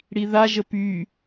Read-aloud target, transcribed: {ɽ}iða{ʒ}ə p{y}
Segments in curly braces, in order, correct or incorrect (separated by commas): correct, correct, correct